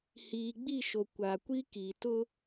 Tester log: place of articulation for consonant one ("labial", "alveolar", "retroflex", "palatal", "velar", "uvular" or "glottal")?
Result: glottal